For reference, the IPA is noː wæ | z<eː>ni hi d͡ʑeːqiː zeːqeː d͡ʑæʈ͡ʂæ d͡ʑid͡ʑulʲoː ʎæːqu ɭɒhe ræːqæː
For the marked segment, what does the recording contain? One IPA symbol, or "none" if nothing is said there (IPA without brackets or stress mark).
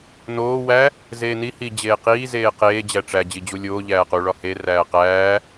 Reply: eː